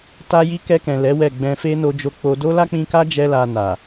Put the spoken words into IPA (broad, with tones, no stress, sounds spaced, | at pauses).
t a˧ j i˧ k ɛ˧ k ɛ̃˨ l ɛ˨˦ w ɛ˦˨ ɡ͡b ɛ̃˧ f e˦ n o˧ d͡ʒ o˧ k͡p o˧ d o˦ l a˦ k͡p ĩ˧ k a˦ d͡ʒ ɛ˦ l a˧ n a˨